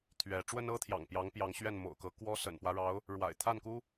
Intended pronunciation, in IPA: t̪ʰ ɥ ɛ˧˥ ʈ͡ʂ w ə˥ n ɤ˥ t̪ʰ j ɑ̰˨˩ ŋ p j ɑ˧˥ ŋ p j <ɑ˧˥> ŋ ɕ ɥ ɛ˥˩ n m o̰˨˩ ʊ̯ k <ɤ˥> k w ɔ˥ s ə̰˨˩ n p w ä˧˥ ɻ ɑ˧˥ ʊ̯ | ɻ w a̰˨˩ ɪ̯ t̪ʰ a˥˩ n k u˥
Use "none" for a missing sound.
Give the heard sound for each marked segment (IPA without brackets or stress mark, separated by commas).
ɑ˧˥, ɤ˧˥